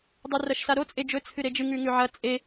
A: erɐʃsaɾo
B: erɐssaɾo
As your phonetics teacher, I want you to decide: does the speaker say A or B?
A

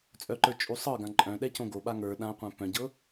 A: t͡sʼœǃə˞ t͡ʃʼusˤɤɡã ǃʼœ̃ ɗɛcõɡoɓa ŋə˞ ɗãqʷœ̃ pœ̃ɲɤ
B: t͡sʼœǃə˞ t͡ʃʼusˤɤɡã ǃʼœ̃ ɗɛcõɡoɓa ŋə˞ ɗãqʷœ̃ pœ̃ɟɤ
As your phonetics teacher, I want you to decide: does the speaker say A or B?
B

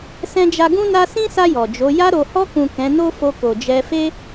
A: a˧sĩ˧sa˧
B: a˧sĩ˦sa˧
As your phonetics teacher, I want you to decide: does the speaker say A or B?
B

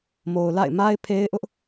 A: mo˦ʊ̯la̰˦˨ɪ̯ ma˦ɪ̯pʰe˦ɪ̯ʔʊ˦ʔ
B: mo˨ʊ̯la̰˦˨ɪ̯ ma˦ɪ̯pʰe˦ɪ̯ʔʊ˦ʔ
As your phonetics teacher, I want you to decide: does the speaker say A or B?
B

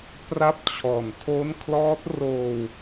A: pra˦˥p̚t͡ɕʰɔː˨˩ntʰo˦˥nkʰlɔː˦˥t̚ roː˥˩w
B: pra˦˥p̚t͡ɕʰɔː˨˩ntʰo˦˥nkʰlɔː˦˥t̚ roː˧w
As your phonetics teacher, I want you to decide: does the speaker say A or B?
B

